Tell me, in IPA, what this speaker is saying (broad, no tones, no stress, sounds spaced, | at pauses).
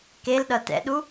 k e l ɗ ʌ t ɛ̰ ɗ u